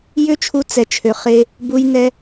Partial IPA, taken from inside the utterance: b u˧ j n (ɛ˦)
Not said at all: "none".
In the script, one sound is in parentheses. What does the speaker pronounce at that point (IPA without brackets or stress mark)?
ɛ˧